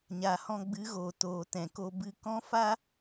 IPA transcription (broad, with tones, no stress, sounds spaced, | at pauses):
ɲ a˨ h ɔ̃˧ ɡ͡b ɨ˨˦ ɣ oː˨ t oː˨ t ɛ̃˨ k o˧ b ɨ˧ k ɔ̃˦ f a˦